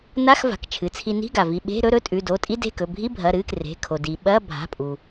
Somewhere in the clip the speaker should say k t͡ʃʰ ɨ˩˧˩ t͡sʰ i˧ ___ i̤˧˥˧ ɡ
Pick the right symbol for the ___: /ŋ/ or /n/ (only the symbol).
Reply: n